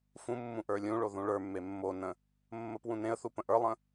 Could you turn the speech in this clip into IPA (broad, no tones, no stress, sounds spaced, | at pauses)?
f ũ mː ũ ʔ ə˞ lʲ ũ ɭ o ð ũ ɭ ə˞ mː e mː o n ə̃ | mː ə p w ũ n ẽ ə̯ θ u p ə̃ ʔ ə˞ lˠ ə̃